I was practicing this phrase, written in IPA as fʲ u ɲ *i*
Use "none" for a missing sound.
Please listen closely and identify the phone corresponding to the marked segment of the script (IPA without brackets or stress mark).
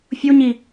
i